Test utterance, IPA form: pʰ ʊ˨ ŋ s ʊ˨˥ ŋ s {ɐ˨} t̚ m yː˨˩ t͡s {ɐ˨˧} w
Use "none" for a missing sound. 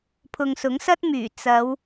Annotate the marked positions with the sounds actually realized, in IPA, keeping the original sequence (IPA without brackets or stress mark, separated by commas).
ɐ˥, ɐ˨˧